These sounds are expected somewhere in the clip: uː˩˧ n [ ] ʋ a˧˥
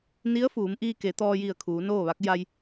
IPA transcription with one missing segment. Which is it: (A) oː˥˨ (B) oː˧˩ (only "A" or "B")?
A